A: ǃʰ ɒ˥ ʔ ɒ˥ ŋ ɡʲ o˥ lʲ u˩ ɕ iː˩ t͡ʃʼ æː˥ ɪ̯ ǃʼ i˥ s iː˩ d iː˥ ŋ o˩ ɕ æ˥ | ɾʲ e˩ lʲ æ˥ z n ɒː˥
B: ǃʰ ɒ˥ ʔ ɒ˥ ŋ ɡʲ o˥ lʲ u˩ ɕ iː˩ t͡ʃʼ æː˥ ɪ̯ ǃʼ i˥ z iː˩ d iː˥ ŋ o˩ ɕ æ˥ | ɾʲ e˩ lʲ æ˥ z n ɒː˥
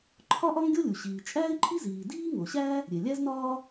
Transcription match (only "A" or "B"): B